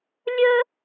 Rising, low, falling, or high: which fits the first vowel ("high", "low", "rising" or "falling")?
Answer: high